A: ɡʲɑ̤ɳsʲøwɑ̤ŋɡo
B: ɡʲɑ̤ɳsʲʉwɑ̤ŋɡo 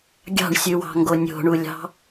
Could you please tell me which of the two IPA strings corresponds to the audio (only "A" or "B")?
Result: B